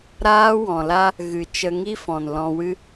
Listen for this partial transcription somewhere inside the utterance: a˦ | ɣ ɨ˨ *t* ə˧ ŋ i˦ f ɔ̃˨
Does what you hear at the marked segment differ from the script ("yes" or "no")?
yes